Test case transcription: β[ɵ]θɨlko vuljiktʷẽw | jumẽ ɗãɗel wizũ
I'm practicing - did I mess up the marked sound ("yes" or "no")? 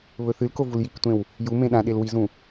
no